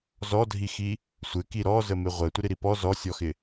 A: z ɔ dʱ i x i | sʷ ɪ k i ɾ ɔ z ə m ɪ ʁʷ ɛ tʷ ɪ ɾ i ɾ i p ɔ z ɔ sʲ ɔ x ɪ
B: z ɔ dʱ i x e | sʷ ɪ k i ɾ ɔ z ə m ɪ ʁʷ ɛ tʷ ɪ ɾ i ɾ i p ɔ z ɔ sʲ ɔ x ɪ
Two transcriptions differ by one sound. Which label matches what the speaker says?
A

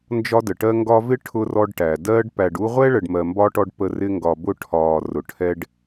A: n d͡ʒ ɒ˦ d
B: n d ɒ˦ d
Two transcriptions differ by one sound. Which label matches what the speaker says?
A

